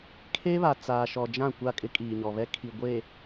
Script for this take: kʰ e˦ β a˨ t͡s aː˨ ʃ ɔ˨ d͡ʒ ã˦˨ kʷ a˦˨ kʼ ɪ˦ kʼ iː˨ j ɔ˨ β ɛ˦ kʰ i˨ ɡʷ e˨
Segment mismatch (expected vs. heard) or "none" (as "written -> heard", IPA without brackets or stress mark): j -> ɲ